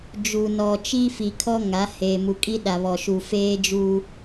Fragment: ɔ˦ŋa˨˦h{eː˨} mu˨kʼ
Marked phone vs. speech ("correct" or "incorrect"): correct